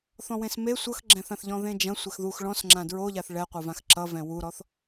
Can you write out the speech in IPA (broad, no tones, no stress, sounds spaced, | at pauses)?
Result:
θ ɔ̃ w ẽ s m e sʷ ʌ x ɡ͡ǁ ɛ̃ θ ã θ ʎ ɔ̃ ð ẽ d͡ʒ ɐ̃ sʷ ɛ x ð u x ɭ ɔ̃ s ŋ͡ǁ ã d ɹ o ʎ a θ ɭ ɛ qʷ ʌ v ã x ǁ ʌ v ɛ̃ w u ɾ ɔ θ